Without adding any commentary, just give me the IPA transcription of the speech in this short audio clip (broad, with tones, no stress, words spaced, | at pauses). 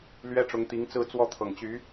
lɥɛ˥ʈ͡ʂʊ˧˥ŋt̪i˧˥ŋt͡sɹ̩˥˧ t͡swɔ˥˩t̪ʰɤ˨˩ŋt͡ɕy˧˥